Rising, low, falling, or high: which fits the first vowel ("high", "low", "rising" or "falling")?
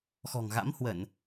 low